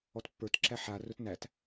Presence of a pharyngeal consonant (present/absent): present